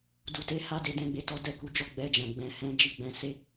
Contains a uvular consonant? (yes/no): no